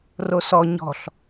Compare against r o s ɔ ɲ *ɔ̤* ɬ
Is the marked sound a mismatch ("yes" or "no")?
no